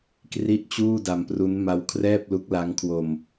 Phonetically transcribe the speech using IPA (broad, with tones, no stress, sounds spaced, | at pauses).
k r i˥˩ ʔ t͡ɕ uː˥˩ d a˧ m p r u˦˥ n m a˦˥ w kʰ r ɛː˥˩ p̚ l u˦˥ k̚ l a˦˥ ŋ kʰ w o˧ m